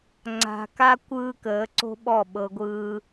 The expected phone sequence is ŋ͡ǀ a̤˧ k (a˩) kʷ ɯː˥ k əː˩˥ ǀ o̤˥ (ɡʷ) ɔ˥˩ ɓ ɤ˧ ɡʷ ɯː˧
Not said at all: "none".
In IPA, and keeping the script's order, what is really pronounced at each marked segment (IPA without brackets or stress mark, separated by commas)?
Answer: a˥, ɓ